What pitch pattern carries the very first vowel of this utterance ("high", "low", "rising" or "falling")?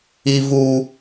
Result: high